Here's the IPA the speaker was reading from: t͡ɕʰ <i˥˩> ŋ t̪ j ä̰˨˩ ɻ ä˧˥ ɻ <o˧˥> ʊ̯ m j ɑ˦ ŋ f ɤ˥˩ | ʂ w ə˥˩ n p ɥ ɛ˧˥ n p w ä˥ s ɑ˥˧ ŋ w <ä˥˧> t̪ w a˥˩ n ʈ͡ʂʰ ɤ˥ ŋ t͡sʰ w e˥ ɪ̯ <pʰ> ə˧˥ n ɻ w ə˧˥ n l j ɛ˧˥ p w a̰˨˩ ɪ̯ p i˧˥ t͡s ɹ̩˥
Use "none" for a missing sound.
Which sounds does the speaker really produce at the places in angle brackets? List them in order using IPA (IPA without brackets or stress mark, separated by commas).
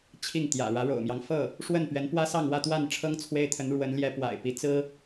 i˥˩, o̰˨˩, ä˥˧, t̪ʰ